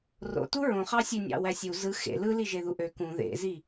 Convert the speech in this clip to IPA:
ro̰tu ɹõ χɑsʲø nʲɑ̰wæsʲu zɯ xḛ lɯliʒe ðuʔø kũ ðḛzi

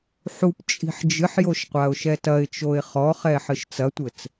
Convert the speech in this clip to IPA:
ħup t͡ʃʼi̤ħd͡ʒɨħjoʃ qʷaʊ̯ʃɛtɐɪ̯t͡ʃoɪ̯ χɔχɛ ħɨʃt͡sɐtʷɘt͡s

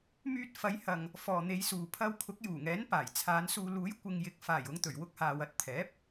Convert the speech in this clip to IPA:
myː˧t̚fɐ˨˧jhɐ˨ŋ | fɔː˨n̪e˨˧jsuː˨ pʰɐ˧wkʰʊ˨˥k̚ juː˨˩ŋɛː˨˥n paː˨˩jt͡sʰaː˨˧nsuː˧ luː˨˥jkʷɪ˨ŋjɪ˨˥k̚faː˨˩j ʊ˨˧ŋt̪ɵ˨˩ɥwʊ˧k̚haː˨w ɐ˧t̚t̪ʰɛː˨˥p̚

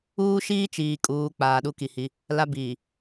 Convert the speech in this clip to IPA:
uː˦ʃiː˦t͡ʃiː˨ kʼuː˨ k͡paː˨ɗu˦ki˨hi˦ | la˦biː˨

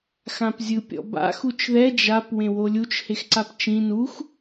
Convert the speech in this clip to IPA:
xãpzʲɯpʲɔ̰ba̰ xut͡ʃðɛ d͡ʒap wẽwolʲut͡ʃ hexǀapt͡ʃĩ nux

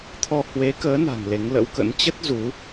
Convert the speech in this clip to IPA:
t̪ʰɔ˧ hwe˨˦kəː˨˦na̤˨˩ŋ le˨˦ŋlə̰˧˥wkə̰˧˥n t͡ɕə˦˥t̚ zu˨˦

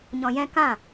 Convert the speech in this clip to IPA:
ɲɔ̃˧jɛ̃˦ kã˦˨

